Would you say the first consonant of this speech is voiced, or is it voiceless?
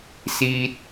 voiceless